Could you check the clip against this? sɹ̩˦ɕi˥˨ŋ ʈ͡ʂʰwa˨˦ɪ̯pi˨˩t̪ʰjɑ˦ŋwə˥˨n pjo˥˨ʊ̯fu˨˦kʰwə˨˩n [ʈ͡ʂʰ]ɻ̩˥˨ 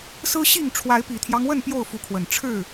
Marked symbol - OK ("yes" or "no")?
yes